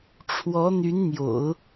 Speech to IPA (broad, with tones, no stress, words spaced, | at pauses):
ʈ͡ʂʰwɔ˧˥n̪y˧˥nn̪jo̰˨˩˦ʊ̯